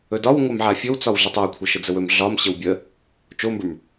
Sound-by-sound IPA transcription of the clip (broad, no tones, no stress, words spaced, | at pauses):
ɵdɒw ŋʷamʕafʲɵw t͡sɒwɮətˤɵwkʷʰə ʃəd͡zəwɵm ɮɒm ɕəwbʲə | t͡ʃombə˞m